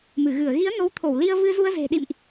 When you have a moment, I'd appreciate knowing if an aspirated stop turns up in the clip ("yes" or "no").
yes